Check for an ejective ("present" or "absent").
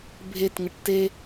absent